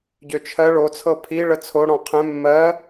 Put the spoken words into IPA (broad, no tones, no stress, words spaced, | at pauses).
ɟøt͡ʃʰɜ ɭo t͡sʰɤpʰi ɭət͡sʰo ɽɔ̃qʰɛ̃ mːɜ